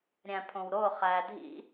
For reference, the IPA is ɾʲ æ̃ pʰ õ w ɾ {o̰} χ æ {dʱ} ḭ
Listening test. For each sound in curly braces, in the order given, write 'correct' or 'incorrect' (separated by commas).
incorrect, correct